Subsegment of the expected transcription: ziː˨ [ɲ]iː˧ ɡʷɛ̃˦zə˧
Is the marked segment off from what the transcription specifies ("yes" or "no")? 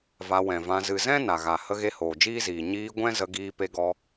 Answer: no